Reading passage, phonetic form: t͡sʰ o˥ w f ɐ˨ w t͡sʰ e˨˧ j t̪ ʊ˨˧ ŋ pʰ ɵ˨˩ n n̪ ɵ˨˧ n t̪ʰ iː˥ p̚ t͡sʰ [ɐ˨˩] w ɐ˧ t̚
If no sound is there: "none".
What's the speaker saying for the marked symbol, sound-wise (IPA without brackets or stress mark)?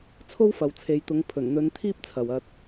ɐ˨